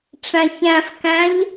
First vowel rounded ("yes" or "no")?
no